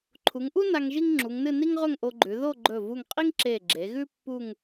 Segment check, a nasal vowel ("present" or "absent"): absent